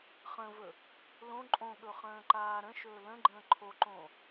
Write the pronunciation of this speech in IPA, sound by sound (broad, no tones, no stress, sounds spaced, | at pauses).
χ ə̃ v ɵ | l õ ǃʼ õ ɠ ɵ χ ə̃ː ǃ aː ɾ ə̃ ʃ ɵː l ə̃ ɡ͡ǃ ə̃ː ǃʰ o ǃ õ